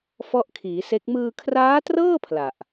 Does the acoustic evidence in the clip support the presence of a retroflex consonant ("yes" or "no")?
no